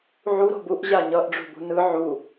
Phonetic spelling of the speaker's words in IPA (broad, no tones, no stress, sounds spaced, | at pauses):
ʕ u ɾ o̤ b u ʔ ʑ a ɲ ʌ ʔ ɖ͡ʐ ṳ b ṳ n ɯ ʕ u